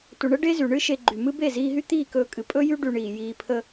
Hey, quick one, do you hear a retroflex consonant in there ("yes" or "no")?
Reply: yes